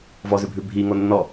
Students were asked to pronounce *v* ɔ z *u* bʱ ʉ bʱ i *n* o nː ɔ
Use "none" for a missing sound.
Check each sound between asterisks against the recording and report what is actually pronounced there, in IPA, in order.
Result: v, ʉ, ŋ

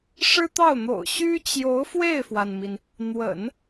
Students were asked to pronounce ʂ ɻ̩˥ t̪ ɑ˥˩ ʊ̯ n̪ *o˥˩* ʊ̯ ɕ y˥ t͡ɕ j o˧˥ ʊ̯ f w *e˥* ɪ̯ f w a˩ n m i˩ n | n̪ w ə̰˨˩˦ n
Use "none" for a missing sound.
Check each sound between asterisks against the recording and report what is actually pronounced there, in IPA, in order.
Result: o̰˨˩, e˥˩

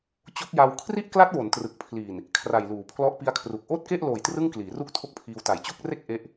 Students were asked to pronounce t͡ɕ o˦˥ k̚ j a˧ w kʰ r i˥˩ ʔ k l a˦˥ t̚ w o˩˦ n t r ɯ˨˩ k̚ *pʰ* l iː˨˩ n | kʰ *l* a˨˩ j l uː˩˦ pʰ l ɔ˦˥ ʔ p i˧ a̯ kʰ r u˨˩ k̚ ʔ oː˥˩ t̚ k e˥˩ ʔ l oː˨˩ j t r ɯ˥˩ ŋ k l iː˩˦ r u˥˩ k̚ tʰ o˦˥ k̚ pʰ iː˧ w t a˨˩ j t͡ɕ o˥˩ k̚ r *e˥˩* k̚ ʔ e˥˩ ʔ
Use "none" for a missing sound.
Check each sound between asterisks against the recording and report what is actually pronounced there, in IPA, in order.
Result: pʰ, r, e˥˩

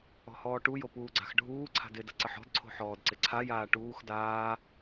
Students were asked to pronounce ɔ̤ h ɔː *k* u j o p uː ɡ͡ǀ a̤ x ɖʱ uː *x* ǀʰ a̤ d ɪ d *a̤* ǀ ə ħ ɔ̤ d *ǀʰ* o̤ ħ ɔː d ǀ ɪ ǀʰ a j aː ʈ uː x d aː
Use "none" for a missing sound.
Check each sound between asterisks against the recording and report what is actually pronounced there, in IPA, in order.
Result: ʈ, none, ə̤, ǀʰ

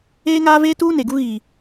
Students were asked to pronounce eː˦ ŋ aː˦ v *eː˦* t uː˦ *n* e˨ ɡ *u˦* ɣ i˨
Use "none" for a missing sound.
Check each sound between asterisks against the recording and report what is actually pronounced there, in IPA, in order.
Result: eː˦, n, u˦

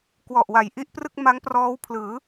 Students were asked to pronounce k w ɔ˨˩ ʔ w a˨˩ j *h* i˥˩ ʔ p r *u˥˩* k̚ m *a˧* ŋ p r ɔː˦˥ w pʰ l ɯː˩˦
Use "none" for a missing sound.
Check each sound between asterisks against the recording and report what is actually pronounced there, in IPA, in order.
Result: ʔ, ɯ˥˩, a˦˥

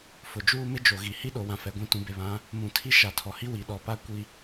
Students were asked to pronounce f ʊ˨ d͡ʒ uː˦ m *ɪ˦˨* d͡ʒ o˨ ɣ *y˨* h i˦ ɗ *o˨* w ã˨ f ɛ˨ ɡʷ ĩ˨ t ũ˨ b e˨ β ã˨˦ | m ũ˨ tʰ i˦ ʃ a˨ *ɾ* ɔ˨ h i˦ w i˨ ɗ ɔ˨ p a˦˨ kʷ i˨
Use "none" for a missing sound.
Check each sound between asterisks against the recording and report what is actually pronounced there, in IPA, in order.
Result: ɪ˦, i˨, o˨, tʰ

